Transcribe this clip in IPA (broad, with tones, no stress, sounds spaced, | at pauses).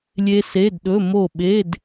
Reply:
lʲ e˦˥ s e˧˥˧ d ɗ ɵ˧˥˧ m o˦˨ ɓ e˧˥˧ d